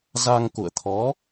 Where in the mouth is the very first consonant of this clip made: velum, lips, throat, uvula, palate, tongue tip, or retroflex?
tongue tip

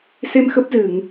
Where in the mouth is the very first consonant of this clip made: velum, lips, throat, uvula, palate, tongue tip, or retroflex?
tongue tip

